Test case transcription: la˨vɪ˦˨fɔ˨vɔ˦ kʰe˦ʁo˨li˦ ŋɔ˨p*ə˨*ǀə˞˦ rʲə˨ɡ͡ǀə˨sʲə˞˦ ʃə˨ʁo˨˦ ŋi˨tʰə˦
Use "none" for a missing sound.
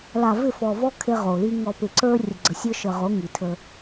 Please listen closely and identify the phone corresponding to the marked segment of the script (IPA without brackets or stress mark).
ɪ˨